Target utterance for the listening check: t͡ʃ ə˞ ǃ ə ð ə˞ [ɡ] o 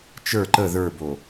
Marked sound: incorrect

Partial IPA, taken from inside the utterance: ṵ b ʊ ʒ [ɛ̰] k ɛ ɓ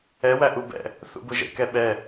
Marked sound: incorrect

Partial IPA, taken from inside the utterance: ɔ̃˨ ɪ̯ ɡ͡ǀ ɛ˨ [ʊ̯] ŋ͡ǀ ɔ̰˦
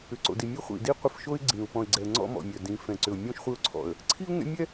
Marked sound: incorrect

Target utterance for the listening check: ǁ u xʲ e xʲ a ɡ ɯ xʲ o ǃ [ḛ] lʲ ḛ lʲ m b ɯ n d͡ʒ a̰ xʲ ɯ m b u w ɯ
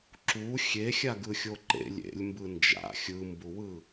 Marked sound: correct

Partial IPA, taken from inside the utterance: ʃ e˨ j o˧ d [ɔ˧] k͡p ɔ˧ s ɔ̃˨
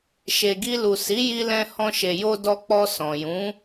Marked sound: correct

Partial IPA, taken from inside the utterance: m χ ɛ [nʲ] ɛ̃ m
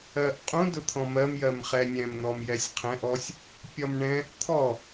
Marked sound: correct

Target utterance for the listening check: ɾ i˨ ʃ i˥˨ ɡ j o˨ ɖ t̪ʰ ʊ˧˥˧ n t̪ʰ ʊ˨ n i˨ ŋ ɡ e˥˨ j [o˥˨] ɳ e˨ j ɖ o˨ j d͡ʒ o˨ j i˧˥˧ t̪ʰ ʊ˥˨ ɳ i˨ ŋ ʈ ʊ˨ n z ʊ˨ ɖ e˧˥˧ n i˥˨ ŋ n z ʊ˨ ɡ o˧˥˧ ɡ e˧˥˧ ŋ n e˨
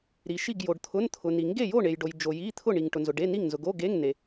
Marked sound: correct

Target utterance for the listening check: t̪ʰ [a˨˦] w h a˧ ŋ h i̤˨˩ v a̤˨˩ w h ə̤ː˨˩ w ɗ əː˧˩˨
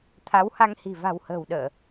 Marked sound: correct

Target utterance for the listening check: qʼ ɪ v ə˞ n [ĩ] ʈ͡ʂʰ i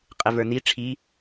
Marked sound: incorrect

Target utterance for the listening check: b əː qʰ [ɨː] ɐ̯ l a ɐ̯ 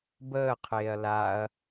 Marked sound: incorrect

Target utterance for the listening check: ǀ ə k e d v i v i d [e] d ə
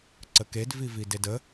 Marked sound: correct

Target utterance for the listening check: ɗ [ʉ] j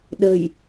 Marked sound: incorrect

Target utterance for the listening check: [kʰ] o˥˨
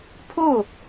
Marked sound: incorrect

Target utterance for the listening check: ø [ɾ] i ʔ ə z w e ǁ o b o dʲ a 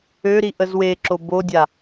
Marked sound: correct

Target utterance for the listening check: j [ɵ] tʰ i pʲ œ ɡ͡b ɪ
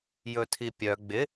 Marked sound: correct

